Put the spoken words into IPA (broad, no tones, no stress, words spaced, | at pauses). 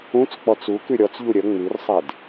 ũt͡s k͡pɔt͡su kʉɾʲɔt͡sʎu ɾʲə ŋ͡mʉrsˤed